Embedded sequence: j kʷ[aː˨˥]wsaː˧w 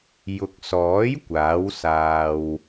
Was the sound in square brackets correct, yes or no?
yes